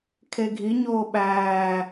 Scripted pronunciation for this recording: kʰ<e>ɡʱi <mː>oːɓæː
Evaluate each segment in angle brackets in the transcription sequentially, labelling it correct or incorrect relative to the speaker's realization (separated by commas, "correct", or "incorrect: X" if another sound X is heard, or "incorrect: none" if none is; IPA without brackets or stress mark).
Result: correct, incorrect: ɲ